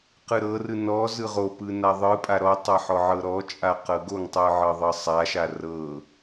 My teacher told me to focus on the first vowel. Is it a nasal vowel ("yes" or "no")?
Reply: no